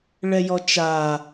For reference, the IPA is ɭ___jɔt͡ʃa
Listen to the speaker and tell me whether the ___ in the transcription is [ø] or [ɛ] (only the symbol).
ɛ